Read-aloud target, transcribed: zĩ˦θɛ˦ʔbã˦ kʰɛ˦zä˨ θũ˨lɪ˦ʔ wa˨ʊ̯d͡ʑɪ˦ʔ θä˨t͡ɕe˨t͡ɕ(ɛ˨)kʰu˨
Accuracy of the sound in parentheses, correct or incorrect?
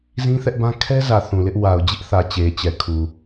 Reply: correct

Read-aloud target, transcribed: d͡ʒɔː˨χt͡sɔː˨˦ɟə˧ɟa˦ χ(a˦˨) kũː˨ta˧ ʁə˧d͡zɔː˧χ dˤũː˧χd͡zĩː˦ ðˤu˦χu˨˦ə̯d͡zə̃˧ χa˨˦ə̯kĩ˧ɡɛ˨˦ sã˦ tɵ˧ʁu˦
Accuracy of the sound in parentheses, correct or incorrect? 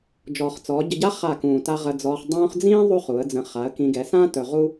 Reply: correct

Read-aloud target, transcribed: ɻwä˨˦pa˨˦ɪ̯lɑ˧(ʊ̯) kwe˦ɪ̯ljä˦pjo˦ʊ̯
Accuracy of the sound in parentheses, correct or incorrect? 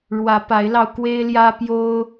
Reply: correct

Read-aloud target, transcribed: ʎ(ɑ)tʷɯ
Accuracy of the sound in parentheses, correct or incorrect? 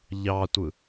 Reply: correct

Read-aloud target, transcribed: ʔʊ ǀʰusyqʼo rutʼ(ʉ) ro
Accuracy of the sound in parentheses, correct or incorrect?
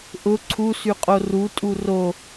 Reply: incorrect: u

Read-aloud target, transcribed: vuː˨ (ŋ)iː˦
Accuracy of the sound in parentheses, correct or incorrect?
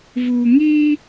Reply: correct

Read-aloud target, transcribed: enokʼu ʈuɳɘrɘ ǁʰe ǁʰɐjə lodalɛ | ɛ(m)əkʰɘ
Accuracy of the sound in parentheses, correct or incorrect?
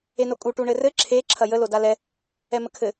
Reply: correct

